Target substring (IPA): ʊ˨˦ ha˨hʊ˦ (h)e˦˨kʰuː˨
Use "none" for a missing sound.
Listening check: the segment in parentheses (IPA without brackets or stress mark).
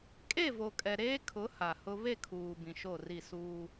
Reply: β